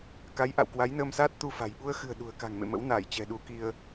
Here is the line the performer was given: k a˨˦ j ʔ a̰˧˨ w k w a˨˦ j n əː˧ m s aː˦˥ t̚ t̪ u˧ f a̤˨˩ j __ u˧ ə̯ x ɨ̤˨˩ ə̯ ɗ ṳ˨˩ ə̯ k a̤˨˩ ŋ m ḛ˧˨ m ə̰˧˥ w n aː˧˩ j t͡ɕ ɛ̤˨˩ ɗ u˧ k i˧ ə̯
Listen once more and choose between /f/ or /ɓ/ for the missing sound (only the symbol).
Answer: ɓ